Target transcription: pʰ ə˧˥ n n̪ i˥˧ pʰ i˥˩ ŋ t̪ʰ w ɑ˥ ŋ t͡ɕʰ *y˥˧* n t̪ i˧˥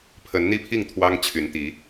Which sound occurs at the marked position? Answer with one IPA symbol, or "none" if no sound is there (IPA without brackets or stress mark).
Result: y˧˥